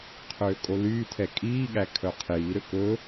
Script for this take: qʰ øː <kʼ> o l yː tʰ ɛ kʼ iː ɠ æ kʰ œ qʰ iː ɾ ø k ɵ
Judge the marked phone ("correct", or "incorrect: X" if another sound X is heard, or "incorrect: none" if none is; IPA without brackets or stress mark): correct